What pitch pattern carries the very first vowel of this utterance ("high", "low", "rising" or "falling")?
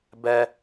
low